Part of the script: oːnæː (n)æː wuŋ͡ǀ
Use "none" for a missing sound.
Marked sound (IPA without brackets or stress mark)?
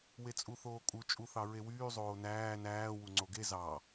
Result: n